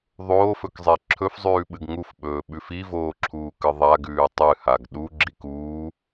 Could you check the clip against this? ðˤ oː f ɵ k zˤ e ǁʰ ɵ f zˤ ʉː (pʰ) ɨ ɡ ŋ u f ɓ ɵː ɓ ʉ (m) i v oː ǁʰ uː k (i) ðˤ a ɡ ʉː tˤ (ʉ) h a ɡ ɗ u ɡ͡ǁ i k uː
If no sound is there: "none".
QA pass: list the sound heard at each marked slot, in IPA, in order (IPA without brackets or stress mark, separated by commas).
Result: ɓ, f, ɨ, ɨ